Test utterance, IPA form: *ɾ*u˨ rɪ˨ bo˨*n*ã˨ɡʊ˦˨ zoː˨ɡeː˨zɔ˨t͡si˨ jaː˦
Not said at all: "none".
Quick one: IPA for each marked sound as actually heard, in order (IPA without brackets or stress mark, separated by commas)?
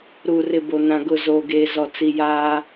ɾ, n